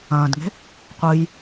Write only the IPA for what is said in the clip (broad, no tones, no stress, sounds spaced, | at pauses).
ɐ̃ː d ŋ e̤ | qʷ ɨ j